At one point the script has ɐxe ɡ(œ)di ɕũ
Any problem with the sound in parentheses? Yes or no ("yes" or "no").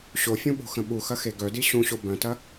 no